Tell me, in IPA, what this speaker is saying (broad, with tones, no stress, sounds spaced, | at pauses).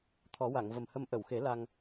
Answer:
t̪ʰ ɔ˨˩˦ w a˨˩˨ ŋ v ə˨˩ m h ə˧ m ʔ ə˨˩˨ w x e˨˩˦ l a˧ ŋ